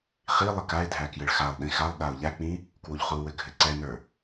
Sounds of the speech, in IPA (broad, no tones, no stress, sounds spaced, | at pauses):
χ i lˠ ɘ k a ɪ̯ dʱ æ k j ɘ ɭ x a lˠ ɗ ĩ x a lˠ ɗ a ʊ̯ ʎ æ k͡p ĩ | k w u ʎ χ u w ɘ ɡʱ ɘ ǀ ɛ n ə˞